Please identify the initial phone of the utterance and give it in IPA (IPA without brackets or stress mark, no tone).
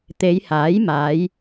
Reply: t̪